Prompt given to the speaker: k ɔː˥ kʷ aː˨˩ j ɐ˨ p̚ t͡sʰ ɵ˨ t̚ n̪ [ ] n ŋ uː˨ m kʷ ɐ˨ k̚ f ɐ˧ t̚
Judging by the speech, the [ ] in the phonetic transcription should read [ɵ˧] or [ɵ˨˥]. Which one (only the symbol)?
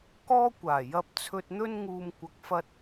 ɵ˧